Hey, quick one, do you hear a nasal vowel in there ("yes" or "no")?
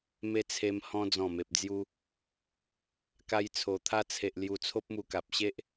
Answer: yes